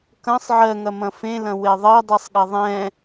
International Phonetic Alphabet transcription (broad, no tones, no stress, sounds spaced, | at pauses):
k ɐ̃ sˤ ʕ ɜ ŋ ɐ m ɐ̃ f ẽ l ɐ̃ w e ðˤ ɜ dˤ i sˤ ɠ ɐ ðˤ ɛ̃